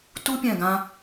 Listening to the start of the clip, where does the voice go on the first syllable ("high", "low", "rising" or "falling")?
high